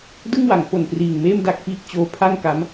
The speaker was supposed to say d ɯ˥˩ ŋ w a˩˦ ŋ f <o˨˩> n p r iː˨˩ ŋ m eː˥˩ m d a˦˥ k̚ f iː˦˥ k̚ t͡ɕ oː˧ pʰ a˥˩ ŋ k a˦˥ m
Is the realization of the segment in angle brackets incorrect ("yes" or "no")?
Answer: no